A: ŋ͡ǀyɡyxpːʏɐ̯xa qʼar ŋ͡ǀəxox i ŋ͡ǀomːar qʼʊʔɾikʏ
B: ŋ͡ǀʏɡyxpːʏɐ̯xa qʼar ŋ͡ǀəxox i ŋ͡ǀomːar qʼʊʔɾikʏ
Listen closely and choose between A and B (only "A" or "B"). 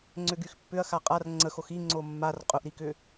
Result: B